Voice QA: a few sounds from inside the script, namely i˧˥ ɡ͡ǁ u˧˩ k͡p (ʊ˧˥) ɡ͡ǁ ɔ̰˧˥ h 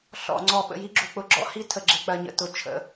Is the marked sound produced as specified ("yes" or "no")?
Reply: yes